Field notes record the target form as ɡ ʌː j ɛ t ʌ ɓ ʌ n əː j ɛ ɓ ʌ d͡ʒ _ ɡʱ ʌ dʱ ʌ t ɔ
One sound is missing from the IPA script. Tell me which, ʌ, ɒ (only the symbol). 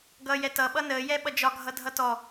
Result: ɒ